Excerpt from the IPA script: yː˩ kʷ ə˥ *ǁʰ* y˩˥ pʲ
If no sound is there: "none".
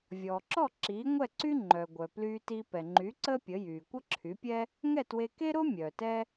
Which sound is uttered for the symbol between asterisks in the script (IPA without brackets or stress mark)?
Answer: ǁʰ